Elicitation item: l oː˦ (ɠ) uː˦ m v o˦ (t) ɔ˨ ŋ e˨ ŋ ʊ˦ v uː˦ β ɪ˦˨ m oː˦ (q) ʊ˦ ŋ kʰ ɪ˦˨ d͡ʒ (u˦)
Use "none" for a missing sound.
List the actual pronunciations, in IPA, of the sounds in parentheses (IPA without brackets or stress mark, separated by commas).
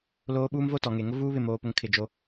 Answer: ɓ, t, p, o˦